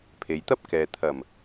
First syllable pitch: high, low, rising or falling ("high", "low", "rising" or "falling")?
low